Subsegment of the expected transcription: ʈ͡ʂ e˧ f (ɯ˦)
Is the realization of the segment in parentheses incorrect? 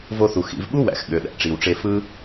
no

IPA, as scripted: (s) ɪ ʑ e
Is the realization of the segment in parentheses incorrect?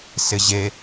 no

